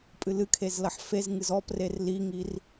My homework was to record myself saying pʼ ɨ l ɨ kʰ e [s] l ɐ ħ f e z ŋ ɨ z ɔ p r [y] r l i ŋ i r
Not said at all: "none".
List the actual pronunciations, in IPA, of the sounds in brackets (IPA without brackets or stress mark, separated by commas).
z, e